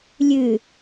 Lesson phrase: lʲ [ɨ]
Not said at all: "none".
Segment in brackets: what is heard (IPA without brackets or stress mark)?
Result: ɨ